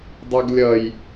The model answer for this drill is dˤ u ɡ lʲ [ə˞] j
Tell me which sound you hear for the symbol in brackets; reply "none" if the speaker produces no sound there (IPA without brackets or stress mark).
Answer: ʌ